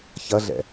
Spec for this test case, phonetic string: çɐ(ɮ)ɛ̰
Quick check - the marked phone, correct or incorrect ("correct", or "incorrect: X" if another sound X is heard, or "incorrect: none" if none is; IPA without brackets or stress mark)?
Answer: correct